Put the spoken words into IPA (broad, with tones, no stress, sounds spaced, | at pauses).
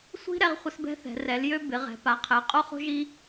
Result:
sʷ i̤˦ ɾ ɛ˦ ʁ χʷ ɪ˦ s b ɛ̤˦ θ ɛ̤˩˧ r ɛ˩˧ l j ø˦ b ɪ˩˧ ʁ ɛ̤˩˧ p a˩˧ qʰ ɛ˩˧ qʼ o˦ χ o̤˦ ʒ i˦